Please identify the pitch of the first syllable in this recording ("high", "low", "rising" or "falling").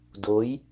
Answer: rising